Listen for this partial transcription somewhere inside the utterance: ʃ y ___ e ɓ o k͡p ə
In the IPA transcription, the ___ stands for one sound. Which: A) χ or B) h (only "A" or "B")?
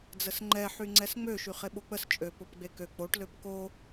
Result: A